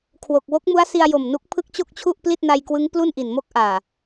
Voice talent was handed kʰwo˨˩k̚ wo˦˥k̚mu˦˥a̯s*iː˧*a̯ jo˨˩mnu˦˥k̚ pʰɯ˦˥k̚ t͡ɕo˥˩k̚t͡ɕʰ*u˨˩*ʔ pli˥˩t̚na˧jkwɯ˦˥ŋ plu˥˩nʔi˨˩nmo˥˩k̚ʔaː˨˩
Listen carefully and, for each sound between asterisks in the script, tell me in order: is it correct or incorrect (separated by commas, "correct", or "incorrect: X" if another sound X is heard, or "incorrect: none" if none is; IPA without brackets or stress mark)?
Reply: incorrect: i˧, incorrect: u˥˩